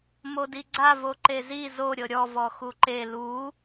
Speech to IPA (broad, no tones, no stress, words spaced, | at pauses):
modiɡ͡ǀa voǃezi zo ɾʲɤɾʲɔ vɔxuǃe lu